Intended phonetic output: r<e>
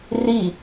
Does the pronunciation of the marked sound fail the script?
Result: yes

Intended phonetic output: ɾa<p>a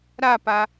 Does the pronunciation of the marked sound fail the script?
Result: no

